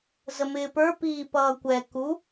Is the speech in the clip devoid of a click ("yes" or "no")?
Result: yes